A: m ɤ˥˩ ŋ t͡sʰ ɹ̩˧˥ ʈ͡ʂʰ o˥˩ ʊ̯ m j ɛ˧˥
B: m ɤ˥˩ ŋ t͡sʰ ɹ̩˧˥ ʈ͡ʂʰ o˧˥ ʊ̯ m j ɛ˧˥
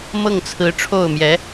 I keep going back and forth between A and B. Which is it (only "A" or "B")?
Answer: A